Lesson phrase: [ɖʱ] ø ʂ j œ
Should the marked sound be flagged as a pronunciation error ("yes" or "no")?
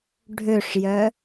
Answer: no